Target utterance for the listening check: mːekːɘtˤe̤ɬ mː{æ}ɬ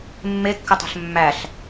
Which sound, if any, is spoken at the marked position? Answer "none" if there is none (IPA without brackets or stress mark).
æ